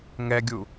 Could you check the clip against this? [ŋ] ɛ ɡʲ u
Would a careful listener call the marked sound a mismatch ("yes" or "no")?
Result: no